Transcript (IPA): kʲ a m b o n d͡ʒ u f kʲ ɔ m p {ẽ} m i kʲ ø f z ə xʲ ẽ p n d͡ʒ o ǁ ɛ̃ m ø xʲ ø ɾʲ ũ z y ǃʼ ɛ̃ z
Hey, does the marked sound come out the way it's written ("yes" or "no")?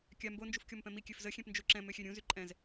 no